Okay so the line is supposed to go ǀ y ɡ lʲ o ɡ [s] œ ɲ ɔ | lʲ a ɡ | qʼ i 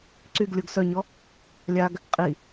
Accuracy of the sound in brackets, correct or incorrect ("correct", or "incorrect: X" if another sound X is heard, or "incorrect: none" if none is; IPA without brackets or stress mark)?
correct